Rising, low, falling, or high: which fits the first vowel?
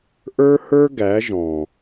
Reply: high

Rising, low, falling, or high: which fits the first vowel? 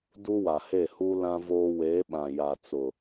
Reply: high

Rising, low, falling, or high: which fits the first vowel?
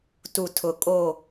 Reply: low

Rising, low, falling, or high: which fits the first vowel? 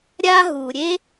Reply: high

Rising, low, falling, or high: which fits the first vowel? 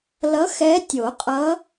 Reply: rising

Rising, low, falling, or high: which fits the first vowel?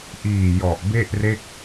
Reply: low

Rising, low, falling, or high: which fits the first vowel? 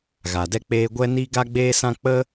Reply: low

